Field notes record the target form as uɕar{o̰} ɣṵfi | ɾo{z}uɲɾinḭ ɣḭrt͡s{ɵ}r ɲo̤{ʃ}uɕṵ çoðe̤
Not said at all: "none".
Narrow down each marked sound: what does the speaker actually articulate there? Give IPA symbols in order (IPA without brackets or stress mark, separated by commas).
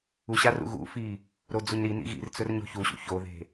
ṵ, d͡z, ɵ, ç